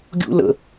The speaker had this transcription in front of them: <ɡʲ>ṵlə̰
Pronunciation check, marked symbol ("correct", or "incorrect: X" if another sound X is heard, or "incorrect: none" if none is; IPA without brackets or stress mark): correct